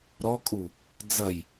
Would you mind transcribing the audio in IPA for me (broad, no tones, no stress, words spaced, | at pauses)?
ɾɔkʼu | d͡zɐj